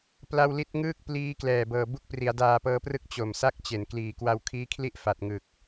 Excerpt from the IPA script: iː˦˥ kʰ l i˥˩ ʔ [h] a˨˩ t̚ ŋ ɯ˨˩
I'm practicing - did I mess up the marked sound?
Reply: yes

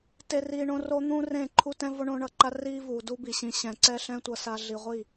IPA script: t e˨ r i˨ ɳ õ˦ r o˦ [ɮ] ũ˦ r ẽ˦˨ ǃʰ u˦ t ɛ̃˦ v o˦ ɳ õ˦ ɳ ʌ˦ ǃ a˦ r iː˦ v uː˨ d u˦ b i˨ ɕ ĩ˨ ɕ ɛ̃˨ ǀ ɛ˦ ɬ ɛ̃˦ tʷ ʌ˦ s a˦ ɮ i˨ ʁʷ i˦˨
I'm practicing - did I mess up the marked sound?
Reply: yes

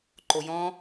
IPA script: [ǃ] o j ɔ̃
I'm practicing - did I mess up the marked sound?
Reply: no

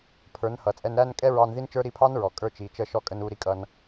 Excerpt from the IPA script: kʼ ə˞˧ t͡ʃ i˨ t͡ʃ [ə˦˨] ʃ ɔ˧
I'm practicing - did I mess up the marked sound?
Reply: no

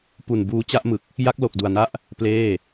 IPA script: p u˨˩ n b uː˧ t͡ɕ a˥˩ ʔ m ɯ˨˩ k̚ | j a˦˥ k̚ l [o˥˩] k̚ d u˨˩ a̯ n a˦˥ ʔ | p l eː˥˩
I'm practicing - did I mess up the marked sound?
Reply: yes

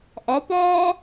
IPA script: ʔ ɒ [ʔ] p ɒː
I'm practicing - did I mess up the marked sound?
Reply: yes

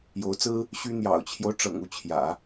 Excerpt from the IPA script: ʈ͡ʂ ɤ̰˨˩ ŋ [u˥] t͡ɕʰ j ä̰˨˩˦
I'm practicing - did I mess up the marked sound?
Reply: yes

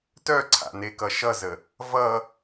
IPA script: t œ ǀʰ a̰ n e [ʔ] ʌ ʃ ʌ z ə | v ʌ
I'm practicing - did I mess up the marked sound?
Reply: yes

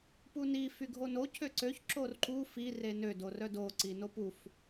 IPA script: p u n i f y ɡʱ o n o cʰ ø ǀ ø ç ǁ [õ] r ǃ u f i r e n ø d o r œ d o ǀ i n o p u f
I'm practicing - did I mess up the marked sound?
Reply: yes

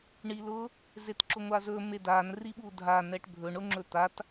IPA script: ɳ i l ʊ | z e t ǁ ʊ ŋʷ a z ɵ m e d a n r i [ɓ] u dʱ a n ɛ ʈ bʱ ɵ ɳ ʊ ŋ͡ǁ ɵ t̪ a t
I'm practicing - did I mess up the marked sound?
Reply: no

